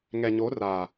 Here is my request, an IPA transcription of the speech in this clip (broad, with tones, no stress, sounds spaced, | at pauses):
ŋ ɛ˨ ɲ o˨˦ r a˨